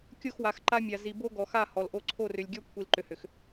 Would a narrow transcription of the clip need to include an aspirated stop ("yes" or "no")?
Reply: yes